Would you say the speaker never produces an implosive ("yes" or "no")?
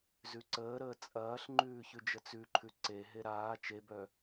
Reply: yes